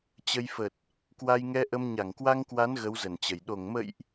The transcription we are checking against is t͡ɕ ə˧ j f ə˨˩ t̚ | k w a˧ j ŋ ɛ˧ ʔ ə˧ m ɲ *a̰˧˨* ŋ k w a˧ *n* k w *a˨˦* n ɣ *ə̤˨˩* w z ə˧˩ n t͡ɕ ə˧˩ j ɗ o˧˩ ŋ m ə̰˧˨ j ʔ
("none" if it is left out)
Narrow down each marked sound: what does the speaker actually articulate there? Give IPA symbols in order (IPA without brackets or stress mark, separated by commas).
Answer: a˧˩, ŋ, a˨˦, ə˨˦